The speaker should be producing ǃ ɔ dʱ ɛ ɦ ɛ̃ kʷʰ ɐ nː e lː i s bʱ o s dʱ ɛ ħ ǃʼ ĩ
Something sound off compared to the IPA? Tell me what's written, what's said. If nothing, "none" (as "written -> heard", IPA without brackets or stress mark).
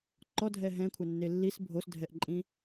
ħ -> ʔ